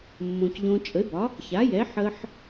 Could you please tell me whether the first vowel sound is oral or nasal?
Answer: nasal